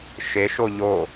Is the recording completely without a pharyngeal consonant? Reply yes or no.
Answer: yes